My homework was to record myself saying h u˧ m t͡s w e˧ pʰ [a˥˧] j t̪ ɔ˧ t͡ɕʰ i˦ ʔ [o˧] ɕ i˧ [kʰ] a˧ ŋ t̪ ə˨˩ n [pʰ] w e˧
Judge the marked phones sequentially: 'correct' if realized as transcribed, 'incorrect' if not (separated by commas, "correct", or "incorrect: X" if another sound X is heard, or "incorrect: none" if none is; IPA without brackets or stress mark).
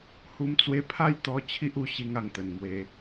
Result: correct, incorrect: u˧, incorrect: ŋ, incorrect: m